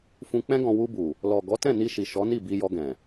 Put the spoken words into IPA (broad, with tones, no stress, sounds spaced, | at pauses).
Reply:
f ũ˧ k͡p ɛ̃˦ ɡ ɔ̃˧ w u˧ b u˨ | l ɔ˨ ɡ ɔ˨˦ t ɛ̃˦˨ n i˧ ʃ i˨ ʃ ɔ˨˦ n i˦˨ b i˧ j ɔ˧ ɡ ɛ̃˨